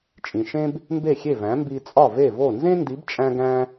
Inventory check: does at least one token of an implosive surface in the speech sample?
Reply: no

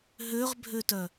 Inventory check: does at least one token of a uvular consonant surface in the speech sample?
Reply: yes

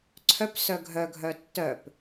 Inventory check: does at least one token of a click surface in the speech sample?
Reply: yes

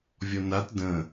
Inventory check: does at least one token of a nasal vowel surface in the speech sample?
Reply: yes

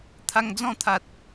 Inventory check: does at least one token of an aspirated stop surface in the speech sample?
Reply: yes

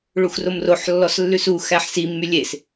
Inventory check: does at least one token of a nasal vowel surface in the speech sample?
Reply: no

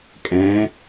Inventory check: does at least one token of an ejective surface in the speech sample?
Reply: yes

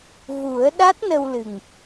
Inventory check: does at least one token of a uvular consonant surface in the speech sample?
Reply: no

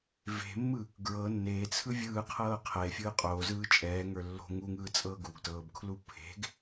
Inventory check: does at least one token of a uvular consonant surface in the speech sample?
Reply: yes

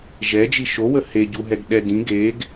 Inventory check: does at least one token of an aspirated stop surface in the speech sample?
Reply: no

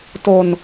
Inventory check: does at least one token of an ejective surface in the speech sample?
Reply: no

